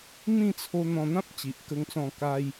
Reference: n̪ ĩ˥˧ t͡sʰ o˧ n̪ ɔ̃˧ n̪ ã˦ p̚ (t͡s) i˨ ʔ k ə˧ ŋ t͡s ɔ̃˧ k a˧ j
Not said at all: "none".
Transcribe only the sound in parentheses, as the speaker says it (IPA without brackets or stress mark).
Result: t͡ɕ